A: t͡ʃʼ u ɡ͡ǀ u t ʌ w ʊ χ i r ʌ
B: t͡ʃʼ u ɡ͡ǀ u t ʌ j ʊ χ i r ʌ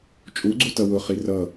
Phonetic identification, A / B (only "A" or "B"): A